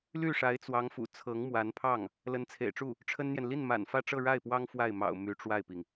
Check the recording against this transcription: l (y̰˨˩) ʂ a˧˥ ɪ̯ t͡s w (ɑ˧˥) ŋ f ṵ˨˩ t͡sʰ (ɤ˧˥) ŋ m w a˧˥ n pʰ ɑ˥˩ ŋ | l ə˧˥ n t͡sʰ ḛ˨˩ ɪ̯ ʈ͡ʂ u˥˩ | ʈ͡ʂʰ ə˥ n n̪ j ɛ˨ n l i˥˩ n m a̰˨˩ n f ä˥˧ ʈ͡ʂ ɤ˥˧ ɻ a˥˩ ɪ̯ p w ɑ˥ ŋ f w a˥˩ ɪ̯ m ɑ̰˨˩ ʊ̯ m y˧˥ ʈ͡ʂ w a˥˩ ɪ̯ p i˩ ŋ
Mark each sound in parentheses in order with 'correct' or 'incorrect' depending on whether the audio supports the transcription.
incorrect, correct, correct

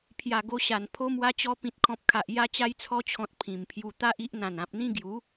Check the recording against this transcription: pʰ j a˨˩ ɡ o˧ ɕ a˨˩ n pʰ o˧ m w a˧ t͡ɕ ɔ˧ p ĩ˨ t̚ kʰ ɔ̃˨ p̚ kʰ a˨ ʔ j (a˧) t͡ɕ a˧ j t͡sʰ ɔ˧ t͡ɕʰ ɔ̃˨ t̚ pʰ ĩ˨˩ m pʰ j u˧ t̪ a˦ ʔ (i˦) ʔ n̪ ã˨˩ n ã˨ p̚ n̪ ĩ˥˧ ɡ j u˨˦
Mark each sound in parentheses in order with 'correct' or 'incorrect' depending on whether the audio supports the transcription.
correct, correct

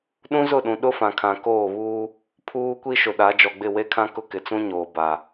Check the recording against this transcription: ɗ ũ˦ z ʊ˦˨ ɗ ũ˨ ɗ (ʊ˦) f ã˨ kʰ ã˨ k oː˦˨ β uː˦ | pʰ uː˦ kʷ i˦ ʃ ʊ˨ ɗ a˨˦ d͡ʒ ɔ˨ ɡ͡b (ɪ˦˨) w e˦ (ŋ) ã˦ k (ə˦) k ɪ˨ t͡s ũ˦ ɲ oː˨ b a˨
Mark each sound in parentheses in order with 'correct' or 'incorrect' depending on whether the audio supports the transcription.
correct, correct, incorrect, incorrect

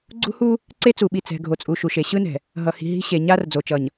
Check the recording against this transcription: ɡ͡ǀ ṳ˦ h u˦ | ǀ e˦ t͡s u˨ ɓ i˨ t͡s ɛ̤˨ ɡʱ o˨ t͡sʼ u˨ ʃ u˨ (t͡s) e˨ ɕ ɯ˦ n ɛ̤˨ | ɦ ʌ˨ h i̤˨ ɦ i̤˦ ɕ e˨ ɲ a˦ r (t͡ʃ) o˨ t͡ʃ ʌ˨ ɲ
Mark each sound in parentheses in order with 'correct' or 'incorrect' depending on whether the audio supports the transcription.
incorrect, incorrect

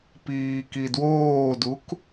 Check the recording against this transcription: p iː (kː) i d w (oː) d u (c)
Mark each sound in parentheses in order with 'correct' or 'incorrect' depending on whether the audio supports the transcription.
incorrect, correct, incorrect

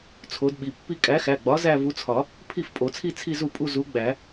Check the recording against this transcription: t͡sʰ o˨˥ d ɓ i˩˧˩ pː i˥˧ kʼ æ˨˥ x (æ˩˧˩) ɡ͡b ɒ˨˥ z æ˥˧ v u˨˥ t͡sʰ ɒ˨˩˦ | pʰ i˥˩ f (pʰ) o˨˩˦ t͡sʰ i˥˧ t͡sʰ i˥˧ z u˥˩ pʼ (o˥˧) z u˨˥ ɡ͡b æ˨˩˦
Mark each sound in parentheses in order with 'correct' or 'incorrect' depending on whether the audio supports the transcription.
correct, incorrect, incorrect

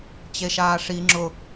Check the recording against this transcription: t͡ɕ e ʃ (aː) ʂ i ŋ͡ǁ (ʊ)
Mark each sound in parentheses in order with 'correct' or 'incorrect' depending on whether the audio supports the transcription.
correct, correct

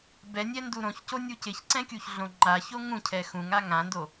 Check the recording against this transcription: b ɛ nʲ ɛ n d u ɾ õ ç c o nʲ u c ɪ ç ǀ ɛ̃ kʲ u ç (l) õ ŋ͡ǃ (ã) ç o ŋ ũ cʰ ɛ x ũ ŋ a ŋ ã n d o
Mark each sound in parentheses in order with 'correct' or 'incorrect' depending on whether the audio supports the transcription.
incorrect, incorrect

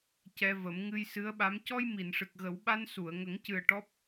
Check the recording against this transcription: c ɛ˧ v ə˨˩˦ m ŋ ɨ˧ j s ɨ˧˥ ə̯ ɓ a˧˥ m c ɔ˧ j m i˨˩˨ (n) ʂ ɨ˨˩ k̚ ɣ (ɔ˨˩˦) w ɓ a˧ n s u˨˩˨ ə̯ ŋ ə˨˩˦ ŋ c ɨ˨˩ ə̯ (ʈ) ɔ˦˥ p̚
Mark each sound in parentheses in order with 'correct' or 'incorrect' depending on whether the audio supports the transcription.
correct, incorrect, correct

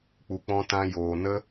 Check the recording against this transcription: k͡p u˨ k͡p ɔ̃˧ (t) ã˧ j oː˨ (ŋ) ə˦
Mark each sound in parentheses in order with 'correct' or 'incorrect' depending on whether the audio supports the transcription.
correct, incorrect

